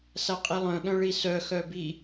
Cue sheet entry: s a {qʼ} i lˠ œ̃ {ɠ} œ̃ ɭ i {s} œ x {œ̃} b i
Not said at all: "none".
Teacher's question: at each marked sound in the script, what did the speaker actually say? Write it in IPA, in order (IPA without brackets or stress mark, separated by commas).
qʼ, ɠ, s, œ